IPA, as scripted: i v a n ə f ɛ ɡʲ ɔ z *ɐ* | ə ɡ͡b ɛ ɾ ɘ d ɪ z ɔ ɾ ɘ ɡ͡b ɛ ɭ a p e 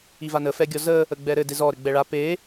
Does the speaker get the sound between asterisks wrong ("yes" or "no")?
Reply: yes